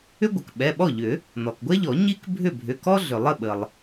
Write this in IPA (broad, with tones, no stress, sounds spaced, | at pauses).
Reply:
ʏ˥ ɡʷ ə˩ k ɓ ɛ˩˧˩ ɓ ɔ˥˩ ʎ ʏ˨˩˦ | n ɔ˩ k ɡʷ ɛ˥ ʎ ɔ˨˩˦ ɲ i˥ k bʱ ʏ˥˩ bʱ ʏ˩˧˩ k ɔ˥ ɮ ʏ˩ lˠ ə˥˩ ɓ ə˩ lˠ